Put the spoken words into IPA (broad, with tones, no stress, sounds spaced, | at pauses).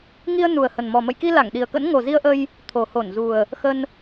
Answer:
ŋ i˧ ə̯ n u˨˩ ə̯ h ə˨˩ n m ɔ˨˩ m ə̰˧˨ j k i˧ l a˧˩ ŋ ɗ i˨˩ ə̯ k ə̰˧˥ n ŋ o˨˩ z i˧ ə̯ ʔ ə˧ j | t̪ʰ o˨˩ h o˧˩ n z u˨˩ ə̯ | x ə˧ n